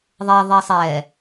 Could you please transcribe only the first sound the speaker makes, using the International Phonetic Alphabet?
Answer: ðˤ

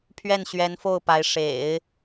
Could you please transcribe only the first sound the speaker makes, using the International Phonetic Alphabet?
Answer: pʰ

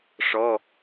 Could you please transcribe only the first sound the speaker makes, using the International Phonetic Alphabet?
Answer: ʂ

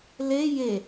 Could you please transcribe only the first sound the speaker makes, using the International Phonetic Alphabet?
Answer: l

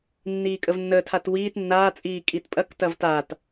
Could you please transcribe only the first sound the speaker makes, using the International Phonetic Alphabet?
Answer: nː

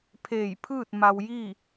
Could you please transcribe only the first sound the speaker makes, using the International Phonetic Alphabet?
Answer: pʰ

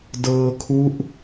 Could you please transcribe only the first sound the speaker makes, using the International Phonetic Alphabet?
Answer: d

